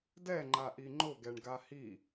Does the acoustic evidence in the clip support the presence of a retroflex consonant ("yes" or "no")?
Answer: yes